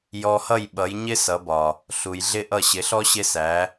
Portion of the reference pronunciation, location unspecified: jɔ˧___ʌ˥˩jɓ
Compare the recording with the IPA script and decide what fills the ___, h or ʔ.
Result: h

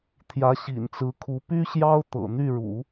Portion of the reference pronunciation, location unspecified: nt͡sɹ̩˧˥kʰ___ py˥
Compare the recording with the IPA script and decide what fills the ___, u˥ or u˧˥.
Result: u˧˥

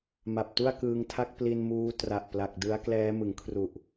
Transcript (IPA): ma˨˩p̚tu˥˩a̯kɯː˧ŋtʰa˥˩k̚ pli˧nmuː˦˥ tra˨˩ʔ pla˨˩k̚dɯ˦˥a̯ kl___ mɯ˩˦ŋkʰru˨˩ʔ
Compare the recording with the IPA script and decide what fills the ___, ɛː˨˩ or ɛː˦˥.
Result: ɛː˦˥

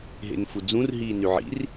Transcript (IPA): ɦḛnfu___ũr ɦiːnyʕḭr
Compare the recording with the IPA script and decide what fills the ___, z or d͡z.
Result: d͡z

